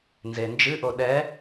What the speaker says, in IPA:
nzend͡ʒɨʔo ɗɛ

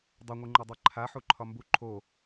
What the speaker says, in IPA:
dˤɛŋʷɯŋ͡ǃødˤɛ ǃʰaħuǃʰɒ mbu ǃʰo

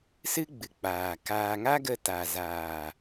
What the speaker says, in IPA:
sɨ˦ɡ͡bɨ˨ k͡paː˨kaː˧ ŋa˦ɡə˧ ta˨zaː˨

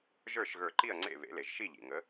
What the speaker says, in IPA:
ʒə˞˥˨ʃɣə˞˧˩ǃi˥˨ɐ̯ ŋ͡ǀḛ˥˨βḛ˩˥le˩ʒ ʃi˥˨ʎḭ˩ ŋə˩˥

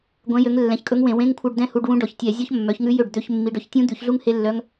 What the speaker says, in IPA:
ɡʷɛ̃˨˦jø˨˦ŋ lːɛ̃˨˦çkʼɵ˦˥ŋwẽ˧˩˧ wẽ˧˥˧ŋkʷʰœ˧˥˧ɖdɛ̃˦˥ hu˧˥˧ɖwũ˦˥ɖɔ˧˩˧ç tʲɛ˧˩˧zʲɔ˦˥ç mːœ˨˦çŋʉ˦˥jø˥˩ɖ d̪ø˧˥˧çmːi˨˦ɖœ˨˦ç tʲũ˦˥d̪ʉ˧˩˧çɮu˦˥ŋ he˦˥lːœ˦˥ŋ

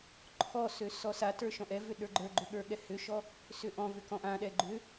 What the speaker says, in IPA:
ǃʰɔsø sɔsatə˞ ʃɔ̃ʔɛvʏ ɗə˞ɡ͡ǃə˞ɡ͡ǃʏ ɠə˞ɠɛhʏʃɔ | sʏʔɔ̃vʏ kɔ̃ʔãɗɛ ɡ͡ǃʏ

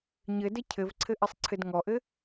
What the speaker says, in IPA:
ɲɘdɘ cʰɘvǀʰɘʔɘsˤǀʰɘd ŋɔʔɘ

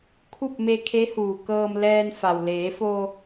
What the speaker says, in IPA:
kʰu˥˨p̚me˧kʰe˧˥huː˩ kɤː˧mlɛː˧n fa˩wleː˩˧fo˧

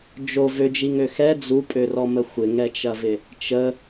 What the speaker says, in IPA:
d͡ʒo vød͡ʒiŋø xɛ d͡zupʼørɔmə xʷɪŋɛt͡ʃɐvɪ | t͡ʃə

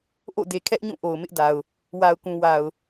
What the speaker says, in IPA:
ʔo̰˦˨de˨kʰɛ˦ʔɲũ˦˨ ʔo˨ʊ̯mɪ˦ʔda˨ʊ̯ | wa˨ʊ̯kũ˨ wa˨ʊ̯

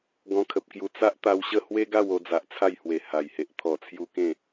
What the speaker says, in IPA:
ɡɔ̃˧kʰə˨p̚kju˧ t͡sa˦ʔt̪a˧wɕə˥˧ hwe˦ɡa˥˧wo˧d͡za˨ʔ t͡sʰa˥˧jhwe˨˩ ha˨˩jhe˨ʔ t̪ʰɔ˨˩t͡sʰju˧ kẽ˥˧

